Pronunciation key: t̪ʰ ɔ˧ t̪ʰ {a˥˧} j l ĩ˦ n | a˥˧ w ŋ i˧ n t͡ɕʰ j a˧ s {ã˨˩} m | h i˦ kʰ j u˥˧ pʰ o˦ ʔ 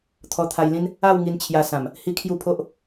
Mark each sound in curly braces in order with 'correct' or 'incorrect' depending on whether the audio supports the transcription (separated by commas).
incorrect, correct